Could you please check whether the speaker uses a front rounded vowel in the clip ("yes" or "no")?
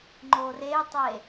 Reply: no